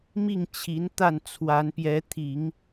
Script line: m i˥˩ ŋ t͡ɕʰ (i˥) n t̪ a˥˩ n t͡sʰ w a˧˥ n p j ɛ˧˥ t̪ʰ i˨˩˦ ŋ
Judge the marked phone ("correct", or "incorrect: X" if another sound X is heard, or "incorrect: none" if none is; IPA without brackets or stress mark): incorrect: i˧˥